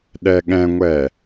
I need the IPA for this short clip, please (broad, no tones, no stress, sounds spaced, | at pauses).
ɗ ɛ ɠ ɛ̃ ŋʷ ɛ